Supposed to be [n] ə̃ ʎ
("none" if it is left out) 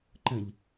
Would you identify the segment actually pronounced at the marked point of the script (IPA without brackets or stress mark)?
ǃ